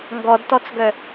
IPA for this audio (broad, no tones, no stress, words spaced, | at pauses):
ŋɡɔdtɔt͡sɡœ